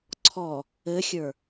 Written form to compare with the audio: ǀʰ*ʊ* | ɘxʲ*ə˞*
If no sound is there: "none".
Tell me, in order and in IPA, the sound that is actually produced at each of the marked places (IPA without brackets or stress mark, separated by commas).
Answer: ɔ, ə˞